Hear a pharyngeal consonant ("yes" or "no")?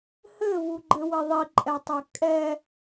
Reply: no